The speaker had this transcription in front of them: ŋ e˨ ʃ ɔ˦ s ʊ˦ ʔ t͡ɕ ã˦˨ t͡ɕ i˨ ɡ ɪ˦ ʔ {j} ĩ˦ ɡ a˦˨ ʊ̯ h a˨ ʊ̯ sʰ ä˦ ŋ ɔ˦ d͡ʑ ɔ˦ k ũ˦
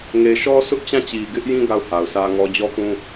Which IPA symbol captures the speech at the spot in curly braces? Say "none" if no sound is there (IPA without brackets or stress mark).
j